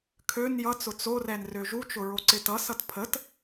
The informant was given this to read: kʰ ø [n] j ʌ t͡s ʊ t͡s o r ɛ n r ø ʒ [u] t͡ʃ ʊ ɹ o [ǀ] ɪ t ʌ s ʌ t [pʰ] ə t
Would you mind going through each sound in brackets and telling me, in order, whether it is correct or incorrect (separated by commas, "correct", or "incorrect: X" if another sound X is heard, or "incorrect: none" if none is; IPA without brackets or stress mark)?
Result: correct, correct, correct, correct